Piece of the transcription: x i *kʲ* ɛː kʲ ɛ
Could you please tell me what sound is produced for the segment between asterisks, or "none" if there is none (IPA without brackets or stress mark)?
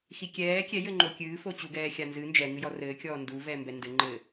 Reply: kʲ